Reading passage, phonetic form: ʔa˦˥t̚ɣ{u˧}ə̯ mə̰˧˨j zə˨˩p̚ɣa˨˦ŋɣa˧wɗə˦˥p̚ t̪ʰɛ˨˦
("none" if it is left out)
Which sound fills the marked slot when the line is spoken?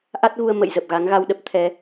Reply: u˧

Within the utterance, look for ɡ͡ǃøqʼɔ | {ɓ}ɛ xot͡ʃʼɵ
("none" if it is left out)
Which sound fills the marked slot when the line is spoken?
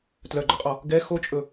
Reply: ɡ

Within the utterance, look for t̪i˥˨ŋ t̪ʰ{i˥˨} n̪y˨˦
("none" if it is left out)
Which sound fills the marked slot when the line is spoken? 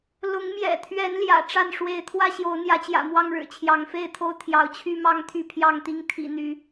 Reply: ḭ˨˩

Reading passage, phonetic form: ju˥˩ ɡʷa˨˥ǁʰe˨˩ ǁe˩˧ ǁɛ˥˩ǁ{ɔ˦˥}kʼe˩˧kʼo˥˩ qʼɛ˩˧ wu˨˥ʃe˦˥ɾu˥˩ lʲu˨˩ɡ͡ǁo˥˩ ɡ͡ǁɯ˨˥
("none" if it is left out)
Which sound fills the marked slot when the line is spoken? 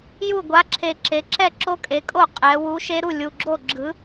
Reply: o˦˥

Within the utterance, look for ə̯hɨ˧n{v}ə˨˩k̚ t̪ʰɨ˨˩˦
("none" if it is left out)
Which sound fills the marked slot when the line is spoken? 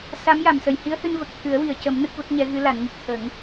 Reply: v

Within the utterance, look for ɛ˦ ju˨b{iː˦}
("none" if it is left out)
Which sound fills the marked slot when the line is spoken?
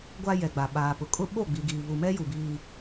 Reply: iː˦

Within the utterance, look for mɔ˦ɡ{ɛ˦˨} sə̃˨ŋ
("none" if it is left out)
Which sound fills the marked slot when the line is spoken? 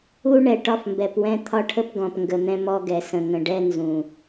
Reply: ɛ˨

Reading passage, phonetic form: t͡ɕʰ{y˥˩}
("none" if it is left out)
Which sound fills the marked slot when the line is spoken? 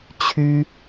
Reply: y˥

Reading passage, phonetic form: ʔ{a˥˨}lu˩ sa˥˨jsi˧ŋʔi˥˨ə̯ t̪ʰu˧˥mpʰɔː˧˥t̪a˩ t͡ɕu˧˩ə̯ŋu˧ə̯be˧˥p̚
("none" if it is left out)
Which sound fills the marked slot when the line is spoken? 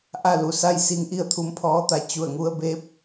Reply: a˥˨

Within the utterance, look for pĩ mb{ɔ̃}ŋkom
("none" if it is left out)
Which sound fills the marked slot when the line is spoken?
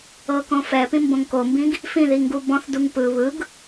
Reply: õ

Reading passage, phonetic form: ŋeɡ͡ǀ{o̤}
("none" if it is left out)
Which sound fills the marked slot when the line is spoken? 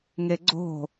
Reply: o̤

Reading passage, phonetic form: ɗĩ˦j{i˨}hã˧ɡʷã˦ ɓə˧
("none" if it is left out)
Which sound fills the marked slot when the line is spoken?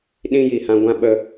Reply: i˨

